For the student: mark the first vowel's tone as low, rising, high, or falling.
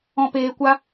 low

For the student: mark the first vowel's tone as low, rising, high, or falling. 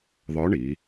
rising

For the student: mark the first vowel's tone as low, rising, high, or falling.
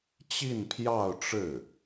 falling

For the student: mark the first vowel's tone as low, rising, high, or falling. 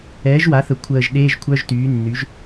rising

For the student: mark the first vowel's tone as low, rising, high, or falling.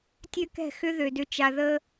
high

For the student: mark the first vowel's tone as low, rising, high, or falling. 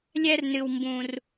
high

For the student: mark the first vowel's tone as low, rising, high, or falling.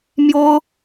high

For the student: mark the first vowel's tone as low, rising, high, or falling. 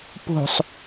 low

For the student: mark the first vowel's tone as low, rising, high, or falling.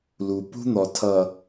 low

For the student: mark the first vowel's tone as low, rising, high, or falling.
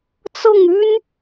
falling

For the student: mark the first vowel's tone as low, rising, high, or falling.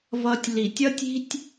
high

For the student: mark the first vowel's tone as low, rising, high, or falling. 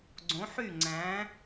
rising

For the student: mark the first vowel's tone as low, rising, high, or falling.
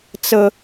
high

